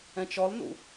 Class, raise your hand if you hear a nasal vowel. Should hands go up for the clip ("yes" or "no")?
yes